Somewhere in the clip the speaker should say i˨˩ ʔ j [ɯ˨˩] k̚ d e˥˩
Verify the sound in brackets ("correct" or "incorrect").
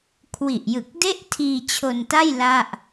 correct